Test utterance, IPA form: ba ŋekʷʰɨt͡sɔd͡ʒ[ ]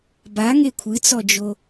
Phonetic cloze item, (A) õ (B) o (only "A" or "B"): B